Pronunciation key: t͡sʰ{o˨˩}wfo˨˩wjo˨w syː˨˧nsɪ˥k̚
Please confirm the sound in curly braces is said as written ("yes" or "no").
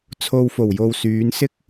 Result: no